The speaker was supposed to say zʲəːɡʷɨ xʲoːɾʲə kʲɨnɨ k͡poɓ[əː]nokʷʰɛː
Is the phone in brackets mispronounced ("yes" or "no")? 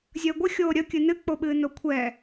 yes